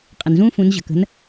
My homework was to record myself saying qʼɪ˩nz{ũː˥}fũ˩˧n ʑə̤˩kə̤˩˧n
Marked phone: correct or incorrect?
correct